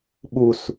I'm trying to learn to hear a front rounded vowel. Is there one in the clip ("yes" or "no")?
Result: no